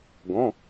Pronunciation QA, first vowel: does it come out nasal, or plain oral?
nasal